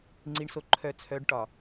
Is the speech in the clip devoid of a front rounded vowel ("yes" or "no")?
no